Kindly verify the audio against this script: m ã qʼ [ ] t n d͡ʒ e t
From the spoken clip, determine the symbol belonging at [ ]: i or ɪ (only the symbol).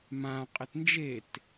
ɪ